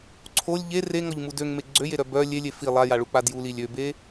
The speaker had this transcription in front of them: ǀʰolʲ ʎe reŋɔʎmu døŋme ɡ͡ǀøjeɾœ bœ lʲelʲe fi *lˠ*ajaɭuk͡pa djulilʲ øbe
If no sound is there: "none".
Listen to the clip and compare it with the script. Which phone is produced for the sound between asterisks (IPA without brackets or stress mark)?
lˠ